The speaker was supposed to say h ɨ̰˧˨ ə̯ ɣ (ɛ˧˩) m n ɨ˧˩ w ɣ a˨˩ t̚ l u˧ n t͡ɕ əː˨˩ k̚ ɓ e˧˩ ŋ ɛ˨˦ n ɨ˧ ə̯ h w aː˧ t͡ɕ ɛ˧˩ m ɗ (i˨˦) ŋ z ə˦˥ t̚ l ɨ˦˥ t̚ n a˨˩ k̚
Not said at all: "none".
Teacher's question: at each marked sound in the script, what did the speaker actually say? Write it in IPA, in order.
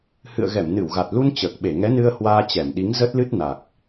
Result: ɛ˧˩, i˨˦

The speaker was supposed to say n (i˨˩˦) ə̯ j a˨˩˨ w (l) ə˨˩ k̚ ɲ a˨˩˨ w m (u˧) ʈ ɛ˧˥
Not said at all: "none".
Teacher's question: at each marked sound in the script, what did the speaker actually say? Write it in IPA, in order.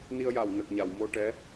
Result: i˧, n, o˧

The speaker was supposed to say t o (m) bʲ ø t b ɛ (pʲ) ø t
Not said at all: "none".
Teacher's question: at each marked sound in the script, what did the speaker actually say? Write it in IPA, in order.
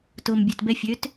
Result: m, fʲ

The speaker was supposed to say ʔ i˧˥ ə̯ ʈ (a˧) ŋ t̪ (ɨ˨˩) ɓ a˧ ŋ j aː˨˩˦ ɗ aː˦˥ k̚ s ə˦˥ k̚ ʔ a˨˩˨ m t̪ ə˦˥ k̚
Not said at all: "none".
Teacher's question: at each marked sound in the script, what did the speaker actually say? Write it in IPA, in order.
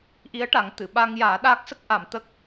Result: a˨˩˦, ɨ˨˩˨

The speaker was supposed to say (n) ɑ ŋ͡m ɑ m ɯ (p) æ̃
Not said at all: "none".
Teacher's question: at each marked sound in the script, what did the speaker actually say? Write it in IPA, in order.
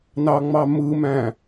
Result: n, m

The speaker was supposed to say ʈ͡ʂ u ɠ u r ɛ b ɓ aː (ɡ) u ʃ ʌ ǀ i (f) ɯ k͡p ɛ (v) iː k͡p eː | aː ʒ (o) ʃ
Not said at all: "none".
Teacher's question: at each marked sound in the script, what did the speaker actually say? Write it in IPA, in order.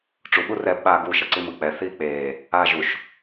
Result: ɡ, m, θ, u

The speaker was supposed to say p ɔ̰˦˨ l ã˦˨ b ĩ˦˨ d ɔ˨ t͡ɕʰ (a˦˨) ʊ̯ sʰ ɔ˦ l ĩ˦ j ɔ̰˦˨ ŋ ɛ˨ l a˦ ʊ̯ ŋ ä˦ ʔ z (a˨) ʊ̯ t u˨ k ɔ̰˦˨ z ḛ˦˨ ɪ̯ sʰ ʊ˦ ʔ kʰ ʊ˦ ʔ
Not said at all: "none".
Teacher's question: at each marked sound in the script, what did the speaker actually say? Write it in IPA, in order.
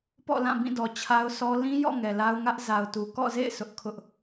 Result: a˦, a˨

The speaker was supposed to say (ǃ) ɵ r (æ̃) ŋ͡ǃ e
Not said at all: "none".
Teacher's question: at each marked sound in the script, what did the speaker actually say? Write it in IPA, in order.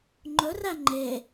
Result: ŋ͡ǃ, æ

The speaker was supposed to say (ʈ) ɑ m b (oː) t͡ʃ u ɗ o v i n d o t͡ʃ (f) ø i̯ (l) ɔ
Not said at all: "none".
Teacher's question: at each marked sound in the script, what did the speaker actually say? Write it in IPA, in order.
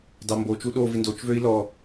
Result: d, o, v, l

